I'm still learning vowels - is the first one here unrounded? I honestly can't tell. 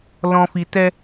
no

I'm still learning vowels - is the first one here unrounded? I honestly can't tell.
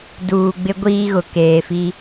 no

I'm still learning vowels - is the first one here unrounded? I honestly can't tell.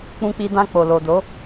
no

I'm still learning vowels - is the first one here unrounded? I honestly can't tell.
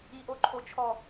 yes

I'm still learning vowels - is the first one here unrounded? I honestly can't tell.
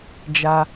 yes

